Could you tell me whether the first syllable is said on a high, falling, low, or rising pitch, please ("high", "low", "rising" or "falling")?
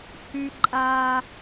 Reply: high